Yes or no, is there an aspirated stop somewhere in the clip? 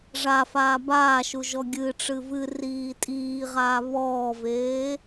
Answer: no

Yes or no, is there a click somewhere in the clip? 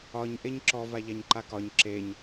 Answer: yes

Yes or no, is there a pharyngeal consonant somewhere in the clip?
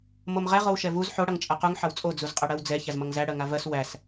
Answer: yes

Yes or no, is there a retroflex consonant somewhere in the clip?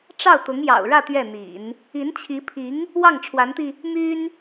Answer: yes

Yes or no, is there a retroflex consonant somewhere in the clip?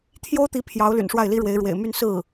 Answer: yes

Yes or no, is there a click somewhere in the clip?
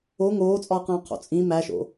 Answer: no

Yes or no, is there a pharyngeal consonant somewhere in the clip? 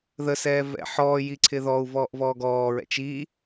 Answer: yes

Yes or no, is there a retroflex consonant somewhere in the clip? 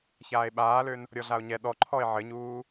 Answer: no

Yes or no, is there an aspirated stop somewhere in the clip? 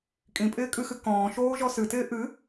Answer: no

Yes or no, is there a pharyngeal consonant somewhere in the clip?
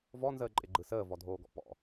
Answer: no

